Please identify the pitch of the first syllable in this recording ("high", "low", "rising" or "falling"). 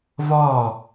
falling